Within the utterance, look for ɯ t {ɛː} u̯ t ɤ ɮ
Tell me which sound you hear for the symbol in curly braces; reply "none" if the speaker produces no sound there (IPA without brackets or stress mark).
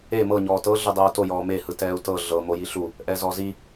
ɛː